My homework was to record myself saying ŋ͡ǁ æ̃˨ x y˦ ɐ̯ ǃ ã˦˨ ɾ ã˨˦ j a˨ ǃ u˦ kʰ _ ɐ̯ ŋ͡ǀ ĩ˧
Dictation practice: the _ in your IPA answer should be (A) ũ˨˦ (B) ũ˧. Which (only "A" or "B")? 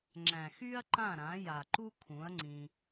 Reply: A